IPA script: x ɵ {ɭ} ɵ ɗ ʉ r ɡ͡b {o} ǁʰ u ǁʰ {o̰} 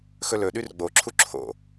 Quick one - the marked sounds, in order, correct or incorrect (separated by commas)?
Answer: incorrect, correct, correct